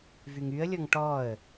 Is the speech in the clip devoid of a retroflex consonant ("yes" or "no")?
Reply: no